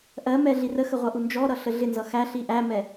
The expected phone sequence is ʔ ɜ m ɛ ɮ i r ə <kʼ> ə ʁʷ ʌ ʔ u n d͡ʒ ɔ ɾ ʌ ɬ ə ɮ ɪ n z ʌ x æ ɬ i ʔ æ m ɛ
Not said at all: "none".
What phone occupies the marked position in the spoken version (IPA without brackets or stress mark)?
x